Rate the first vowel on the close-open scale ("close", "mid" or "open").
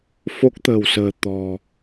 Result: mid